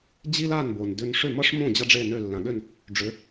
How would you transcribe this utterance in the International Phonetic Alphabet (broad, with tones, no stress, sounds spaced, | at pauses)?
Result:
d͡ʑ i˥ l a˥˩ n b o˩ n d ʏ˧ n ʂ ʏ˥˩ m ʌ˥ ʂ m õ˥˩ d͡ʑ ʌ˥ ɖ͡ʐ e˥˩ n ø˥˩ lː ã˩ ɠ ø˥˩ n | ɖ͡ʐ ʏ˩˥